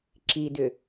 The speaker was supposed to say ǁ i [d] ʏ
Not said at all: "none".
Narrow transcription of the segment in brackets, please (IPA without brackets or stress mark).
d